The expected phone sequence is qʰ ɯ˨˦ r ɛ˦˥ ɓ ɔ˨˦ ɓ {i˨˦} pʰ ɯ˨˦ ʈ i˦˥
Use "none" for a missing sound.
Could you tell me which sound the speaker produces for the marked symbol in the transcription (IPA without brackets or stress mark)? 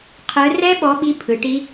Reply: i˨˦